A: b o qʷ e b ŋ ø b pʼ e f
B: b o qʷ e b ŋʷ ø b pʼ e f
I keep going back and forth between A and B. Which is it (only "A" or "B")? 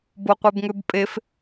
A